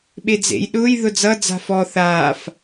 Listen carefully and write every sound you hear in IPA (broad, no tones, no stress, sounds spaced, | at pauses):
ɓ e d͡z ḛ j ɗ ʊː j ð ʊ d͡z ʌ d͡z a̤ f ɔ θ aː f